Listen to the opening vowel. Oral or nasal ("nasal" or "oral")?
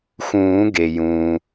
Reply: nasal